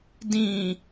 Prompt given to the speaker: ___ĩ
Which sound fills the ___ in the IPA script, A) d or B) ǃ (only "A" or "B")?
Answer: A